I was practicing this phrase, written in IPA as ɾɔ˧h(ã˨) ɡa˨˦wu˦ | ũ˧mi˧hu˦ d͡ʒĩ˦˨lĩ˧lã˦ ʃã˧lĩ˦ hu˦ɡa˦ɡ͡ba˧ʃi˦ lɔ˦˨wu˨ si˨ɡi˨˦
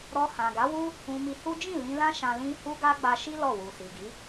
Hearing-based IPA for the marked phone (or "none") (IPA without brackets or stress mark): ã˨